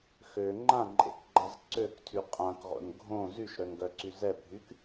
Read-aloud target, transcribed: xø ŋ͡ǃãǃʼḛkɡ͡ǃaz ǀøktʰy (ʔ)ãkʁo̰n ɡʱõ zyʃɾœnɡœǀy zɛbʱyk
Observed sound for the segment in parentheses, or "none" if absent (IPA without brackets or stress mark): qʼ